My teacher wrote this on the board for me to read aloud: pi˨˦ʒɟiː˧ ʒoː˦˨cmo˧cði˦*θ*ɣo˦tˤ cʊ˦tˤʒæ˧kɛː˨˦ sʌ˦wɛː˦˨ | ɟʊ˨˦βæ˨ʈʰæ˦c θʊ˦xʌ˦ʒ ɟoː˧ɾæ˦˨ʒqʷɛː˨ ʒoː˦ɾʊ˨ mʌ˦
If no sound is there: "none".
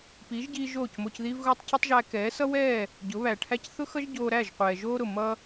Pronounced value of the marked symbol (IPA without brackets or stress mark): v